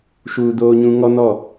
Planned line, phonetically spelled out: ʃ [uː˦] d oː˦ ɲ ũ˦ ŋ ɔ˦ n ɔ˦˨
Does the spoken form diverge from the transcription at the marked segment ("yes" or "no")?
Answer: no